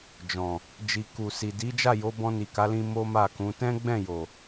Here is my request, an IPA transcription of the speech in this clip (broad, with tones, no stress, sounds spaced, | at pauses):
d͡ʒ ɔ̃˨ | d͡ʒ i˨ k u˨ s i˨ d i˨˦ d͡ʒ a˦˨ j o˨˦ b ɔ̃˧ n i˨ k a˨˦ l ĩ˧ m o˦ m a˦˨ k ũ˨˦ t ɛ̃˦ ɡ͡b ɛ̃˦˨ j o˨